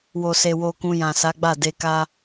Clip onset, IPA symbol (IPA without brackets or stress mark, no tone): w